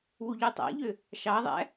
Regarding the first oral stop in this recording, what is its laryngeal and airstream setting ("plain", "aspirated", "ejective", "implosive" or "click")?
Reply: plain